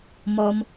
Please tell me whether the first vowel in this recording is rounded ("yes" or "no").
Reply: yes